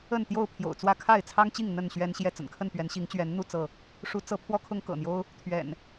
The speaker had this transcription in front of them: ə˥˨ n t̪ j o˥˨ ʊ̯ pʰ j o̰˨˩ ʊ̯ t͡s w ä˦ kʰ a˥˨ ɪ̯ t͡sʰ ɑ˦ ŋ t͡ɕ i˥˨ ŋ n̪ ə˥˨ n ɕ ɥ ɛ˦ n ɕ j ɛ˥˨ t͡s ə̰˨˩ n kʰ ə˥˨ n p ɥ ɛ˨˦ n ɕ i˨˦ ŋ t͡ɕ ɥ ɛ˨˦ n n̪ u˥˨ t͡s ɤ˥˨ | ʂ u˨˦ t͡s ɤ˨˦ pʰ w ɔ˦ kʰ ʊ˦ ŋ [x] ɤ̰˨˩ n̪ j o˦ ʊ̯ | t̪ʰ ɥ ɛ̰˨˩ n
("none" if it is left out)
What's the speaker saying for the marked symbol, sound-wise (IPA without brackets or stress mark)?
k